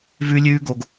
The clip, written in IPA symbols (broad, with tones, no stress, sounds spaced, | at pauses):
v ʉ˦ lʲ ʉː˦ ɡ o˨ ɡ